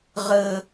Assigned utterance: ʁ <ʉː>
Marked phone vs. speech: incorrect: əː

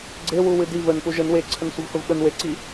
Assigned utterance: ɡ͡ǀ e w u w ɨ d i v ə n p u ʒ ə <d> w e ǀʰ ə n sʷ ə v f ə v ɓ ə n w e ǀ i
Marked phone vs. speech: incorrect: n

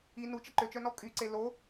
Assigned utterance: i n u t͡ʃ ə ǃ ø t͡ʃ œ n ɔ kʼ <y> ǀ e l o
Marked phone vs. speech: correct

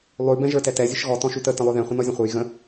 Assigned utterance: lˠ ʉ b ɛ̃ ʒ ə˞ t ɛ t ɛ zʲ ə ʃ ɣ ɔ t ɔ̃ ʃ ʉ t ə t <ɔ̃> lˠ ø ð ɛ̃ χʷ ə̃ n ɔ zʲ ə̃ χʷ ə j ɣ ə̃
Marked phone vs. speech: incorrect: ə̃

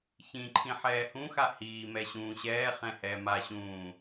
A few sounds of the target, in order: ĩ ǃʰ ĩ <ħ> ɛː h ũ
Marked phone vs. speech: correct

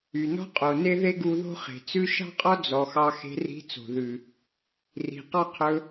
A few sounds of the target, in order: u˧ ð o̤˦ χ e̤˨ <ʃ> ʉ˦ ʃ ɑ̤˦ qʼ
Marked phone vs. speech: incorrect: t͡s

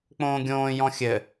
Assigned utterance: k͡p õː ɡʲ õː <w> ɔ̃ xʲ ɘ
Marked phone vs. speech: incorrect: j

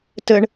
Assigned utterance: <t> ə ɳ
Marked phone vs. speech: correct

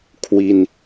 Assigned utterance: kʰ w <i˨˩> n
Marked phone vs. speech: incorrect: i˧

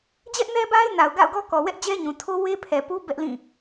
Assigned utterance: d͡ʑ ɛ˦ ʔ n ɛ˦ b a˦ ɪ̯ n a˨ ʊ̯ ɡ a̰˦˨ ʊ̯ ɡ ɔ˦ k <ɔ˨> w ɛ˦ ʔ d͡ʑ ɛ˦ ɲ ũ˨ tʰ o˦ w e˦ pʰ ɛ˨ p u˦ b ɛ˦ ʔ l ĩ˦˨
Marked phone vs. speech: correct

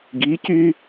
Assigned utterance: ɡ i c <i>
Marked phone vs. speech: incorrect: y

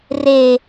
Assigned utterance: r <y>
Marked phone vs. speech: incorrect: e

